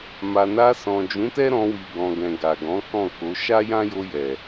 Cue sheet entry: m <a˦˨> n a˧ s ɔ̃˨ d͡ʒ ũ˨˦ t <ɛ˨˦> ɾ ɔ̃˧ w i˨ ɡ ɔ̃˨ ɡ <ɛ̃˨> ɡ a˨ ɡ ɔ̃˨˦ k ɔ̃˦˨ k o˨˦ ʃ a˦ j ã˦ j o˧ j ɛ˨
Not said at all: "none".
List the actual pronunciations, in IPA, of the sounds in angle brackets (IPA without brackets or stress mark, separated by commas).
a˧, ɛ˦, ɛ̃˨